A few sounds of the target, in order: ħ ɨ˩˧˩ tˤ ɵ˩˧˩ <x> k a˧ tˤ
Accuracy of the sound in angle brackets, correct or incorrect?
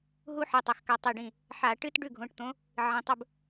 correct